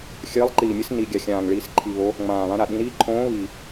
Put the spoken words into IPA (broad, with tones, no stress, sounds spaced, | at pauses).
xʲ ɘː˨˦ lˠ ǃ iː˨˩ mʲ ɘ˨˦ s n i˨˩ ɡʲ a˨˩ xʲ ãː˨˩ ŋ ɭ iː˨˩ s ǃʰ i˨˩ β o˨˦ | ŋ͡m ãː˨˩ β ã˨˦ ɾ a˨˩ ɗ ĩ˨˦ ɾ iː˨˦ ǃʰ õː˨˦ β i˨˩